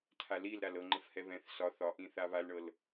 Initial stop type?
aspirated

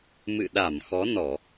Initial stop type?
implosive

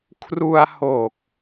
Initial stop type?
aspirated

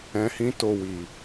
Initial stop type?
plain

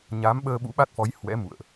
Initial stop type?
implosive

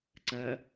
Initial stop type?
click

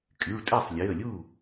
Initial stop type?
ejective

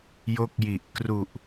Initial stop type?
plain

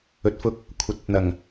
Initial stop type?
plain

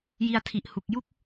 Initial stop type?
aspirated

